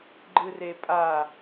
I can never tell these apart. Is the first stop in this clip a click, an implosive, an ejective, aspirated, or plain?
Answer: click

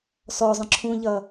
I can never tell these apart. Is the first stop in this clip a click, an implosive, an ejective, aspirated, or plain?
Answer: click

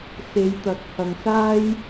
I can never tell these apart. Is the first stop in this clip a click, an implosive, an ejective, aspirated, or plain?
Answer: plain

